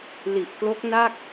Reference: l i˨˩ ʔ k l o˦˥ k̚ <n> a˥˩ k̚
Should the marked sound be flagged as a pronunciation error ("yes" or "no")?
no